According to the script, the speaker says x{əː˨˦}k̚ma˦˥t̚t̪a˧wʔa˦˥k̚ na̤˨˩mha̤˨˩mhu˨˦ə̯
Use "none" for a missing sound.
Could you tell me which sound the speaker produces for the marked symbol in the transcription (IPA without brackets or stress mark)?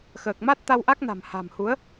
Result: əː˨˩